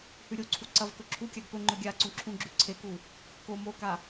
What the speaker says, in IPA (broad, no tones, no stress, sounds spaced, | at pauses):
h ʉ ɾʲ o ǀʰ u ǀ ɐ v k ɵ ǁʰ u kʲ a ɡ p ɵ ŋ͡ǃ ɵ ɡʲ a ǀ ũ ǁʰ ũ ɡ͡ǁ ʉ ǀʰ e k u | k o m o k a